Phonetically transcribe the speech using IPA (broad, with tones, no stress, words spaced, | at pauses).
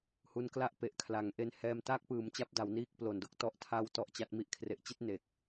hu˧nkla˥˩ʔ pe˨˩ʔkʰla˩˦ŋʔe˧n hɛː˧mtaː˥˩k̚pɯː˩˦mt͡ɕa˦˥p̚ da˩˦wniː˦˥k̚ plo˨˩ndo˦˥k̚tɔ˦˥ʔ tʰa˦˥w tɔ˥˩ʔt͡ɕa˦˥t̚ mi˦˥ʔkʰre˨˩ʔt͡ɕi˥˩t̚ ne˨˩k̚